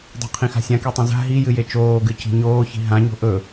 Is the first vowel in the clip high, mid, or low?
high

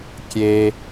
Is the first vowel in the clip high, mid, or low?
mid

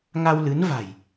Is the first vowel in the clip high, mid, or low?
low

